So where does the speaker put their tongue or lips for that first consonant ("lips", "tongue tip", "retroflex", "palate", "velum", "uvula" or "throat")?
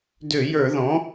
tongue tip